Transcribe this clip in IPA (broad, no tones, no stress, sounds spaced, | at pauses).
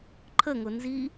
ǃʰ ə ŋ ʊ n z i